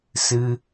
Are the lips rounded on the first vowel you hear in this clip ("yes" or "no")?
no